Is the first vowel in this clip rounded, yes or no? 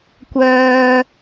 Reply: yes